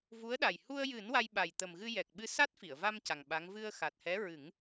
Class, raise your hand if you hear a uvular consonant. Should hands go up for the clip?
no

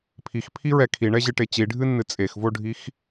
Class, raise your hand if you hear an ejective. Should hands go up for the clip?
yes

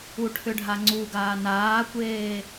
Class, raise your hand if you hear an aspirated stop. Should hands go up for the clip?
yes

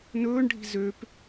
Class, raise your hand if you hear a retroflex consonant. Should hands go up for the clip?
yes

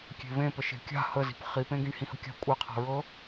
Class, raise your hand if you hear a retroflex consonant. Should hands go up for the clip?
yes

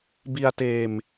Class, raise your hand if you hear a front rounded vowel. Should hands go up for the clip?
no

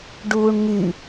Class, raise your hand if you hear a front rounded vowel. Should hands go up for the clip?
yes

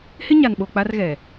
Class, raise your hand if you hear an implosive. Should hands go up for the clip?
yes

